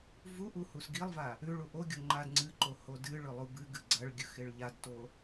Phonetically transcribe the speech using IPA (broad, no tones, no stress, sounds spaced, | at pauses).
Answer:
v u ʔ u h u s ɡ i lˠ v a | ʉ ɭ u ʔ o ɡʲ o ŋ͡ǃ a d ŋ͡ǀ ɨ ǃ o h o d ɨ ɭ ɵ lˠ u b ɨ ɡ ɨ ɡ͡ǀ ɐ ɭ ɡʲ ɵ x e ɭ ʎ a d t o